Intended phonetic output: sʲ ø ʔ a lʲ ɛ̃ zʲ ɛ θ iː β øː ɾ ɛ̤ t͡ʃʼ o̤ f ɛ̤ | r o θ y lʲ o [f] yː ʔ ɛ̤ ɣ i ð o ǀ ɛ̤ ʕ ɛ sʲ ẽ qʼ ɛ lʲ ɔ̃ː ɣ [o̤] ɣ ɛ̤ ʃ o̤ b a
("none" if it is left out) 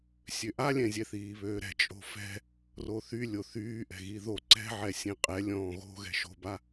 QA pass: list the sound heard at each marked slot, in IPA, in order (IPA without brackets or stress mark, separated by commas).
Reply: θ, o̤